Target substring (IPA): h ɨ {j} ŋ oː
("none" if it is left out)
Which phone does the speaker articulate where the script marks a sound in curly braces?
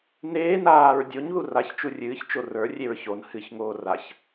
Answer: ç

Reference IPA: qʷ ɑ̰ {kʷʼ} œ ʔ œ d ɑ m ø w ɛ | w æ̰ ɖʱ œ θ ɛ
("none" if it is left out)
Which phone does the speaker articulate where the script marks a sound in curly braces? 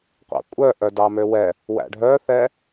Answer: kʷʼ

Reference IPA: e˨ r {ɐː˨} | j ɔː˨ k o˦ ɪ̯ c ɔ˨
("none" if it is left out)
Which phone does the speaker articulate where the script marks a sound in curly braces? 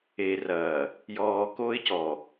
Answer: ɐː˨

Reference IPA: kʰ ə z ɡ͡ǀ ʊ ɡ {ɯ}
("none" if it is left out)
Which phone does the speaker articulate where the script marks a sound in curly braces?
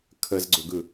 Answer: ɯ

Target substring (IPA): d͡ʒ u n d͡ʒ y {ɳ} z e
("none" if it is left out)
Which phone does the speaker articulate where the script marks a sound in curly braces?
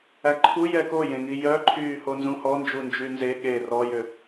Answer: n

